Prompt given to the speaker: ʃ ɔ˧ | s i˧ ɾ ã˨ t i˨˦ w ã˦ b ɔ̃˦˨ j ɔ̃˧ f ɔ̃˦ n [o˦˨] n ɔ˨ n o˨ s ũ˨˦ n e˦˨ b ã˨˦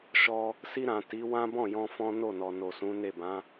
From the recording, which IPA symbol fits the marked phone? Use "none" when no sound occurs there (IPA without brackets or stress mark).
o˦˨